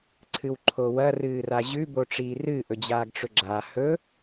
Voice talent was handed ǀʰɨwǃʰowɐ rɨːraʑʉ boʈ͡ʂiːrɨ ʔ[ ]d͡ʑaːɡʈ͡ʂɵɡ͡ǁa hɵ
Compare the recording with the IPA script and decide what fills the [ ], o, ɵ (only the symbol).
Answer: ɵ